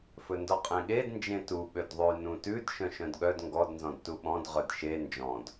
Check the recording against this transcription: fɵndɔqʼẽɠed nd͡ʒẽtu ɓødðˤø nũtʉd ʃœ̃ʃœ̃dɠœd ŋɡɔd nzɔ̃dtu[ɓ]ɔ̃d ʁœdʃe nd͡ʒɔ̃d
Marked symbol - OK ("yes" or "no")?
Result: yes